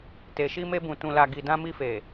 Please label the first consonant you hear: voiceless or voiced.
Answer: voiceless